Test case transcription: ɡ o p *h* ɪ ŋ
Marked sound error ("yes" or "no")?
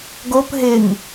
yes